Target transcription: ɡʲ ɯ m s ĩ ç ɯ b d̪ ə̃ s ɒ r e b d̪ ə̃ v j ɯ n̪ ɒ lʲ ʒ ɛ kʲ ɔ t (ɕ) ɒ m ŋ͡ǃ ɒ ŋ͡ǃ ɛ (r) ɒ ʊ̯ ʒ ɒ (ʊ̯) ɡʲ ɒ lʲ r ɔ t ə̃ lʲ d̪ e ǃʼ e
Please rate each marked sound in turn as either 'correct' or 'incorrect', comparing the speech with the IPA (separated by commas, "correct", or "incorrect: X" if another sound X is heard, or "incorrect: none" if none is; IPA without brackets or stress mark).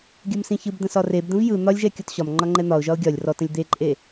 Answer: correct, incorrect: n̪, correct